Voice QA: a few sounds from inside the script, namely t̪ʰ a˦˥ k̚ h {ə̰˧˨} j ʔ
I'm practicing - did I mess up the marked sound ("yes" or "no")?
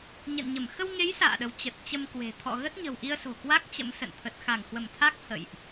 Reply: no